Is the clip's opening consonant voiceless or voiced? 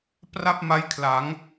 voiceless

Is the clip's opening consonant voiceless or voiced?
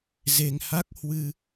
voiced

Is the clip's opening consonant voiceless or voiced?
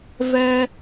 voiced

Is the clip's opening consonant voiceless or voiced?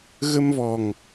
voiced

